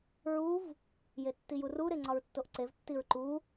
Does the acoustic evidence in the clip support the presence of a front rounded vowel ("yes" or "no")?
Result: no